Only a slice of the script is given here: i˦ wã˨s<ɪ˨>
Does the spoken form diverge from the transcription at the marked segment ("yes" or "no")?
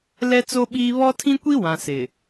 no